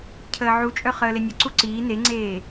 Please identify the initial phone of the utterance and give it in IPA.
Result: cʰ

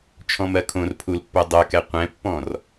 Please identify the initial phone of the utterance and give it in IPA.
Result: t͡ʃʰ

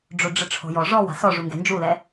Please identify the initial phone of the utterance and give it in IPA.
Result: ɖ͡ʐ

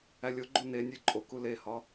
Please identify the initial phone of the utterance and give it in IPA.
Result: æ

